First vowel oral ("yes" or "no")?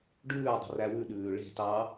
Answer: yes